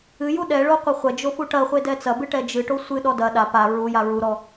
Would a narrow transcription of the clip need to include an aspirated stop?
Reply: no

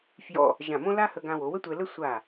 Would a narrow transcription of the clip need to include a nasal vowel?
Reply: yes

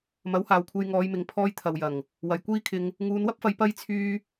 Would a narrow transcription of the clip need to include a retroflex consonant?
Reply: no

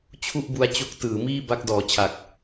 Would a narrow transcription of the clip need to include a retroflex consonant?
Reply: no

